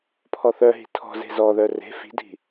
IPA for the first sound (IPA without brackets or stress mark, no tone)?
pʰ